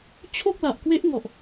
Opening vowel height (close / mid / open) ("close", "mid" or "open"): mid